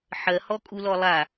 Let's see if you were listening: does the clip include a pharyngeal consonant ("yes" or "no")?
yes